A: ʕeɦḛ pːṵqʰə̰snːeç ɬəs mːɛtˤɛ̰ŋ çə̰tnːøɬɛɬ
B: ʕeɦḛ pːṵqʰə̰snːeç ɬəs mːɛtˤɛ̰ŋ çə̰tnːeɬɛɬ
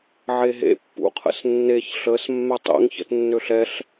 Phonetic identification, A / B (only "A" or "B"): A